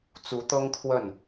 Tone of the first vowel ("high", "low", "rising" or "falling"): rising